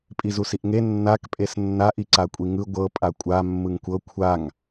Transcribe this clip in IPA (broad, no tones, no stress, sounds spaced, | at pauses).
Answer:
pʼ i z u s i ʔ ŋ e nː a k pʼ e s nː a ʔ i ǀ a kʷʼ i ŋ ɯ ɡʷ ɤ pʼ a kʷʼ a mː ɯ ŋ kʷ ɤ kʷʰ a ŋ